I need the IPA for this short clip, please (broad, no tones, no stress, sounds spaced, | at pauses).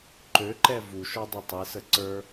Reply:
ǃ ø ǃ ɛ v u ʃ ɔ dˤ i tˤ e s ə ǀ ə˞